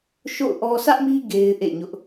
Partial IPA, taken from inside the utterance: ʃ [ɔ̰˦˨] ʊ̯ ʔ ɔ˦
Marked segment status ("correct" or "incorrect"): incorrect